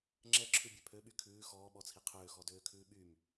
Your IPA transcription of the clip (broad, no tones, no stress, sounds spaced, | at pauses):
ŋ͡ǁ ɛ ǁʰ ʉ bʲ ø pʰ ø ɓ y kʰ ʉː x ɔː ɓ ɔ t͡sʰ i qʰ øː x ɔ d øː kʰ ʉː ɓ y m